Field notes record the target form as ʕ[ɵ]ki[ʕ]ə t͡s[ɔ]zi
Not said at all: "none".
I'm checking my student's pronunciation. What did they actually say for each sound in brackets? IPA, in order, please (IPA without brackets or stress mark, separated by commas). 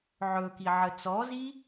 ɵ, ʕ, ɔ